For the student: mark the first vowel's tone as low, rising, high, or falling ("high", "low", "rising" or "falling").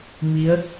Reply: rising